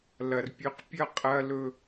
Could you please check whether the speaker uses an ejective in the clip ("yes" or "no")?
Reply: yes